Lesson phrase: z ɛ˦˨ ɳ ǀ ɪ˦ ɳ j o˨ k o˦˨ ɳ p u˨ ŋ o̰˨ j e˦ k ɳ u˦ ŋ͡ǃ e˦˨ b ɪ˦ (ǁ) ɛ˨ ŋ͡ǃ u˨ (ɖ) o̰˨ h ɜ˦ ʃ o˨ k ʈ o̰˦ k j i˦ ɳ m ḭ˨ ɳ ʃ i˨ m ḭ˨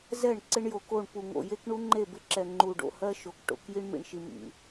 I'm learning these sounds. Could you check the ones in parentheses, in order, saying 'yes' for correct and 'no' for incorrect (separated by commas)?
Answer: yes, yes